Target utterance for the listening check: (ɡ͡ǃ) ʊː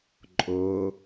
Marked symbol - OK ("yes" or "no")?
no